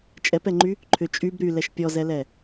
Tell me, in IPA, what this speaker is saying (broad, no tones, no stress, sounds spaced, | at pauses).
t͡ʃʼ ɛ p ɛ ŋ͡ǃ y | ǃʰ ʏ t͡ʃʼ y b ɾ y l ɛ ʃ pʲ ɔ z ɛ l ɛ